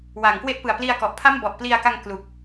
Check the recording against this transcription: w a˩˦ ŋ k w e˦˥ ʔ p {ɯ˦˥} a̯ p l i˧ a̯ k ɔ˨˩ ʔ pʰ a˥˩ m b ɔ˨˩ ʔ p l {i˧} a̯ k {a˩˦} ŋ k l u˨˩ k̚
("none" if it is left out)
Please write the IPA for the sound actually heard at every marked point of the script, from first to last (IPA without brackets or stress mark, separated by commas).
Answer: ɯ˨˩, i˧, a˧